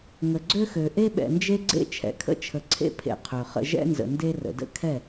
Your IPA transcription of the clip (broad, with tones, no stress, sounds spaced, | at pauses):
ŋ ə˨ ɡ͡ǀ ø˦ x ø˨ ʔ e˦ ɓ ɛ̰˨ n d͡ʒ e˦ ɡ͡ǀ ḛ˦ t͡ʃʰ ɛ̰˨ kʰ ə̰˦ t͡ʃʰ ə˨ ǀʰ ḛ˦ pʰ ḛ˨ qʰ ø˨ χ ə̰˦ ʒ ɛ̰˦ n z ə̰˨ n d e˦ r ə̰˨ d ə̰˦ kʰ ɛ˦˨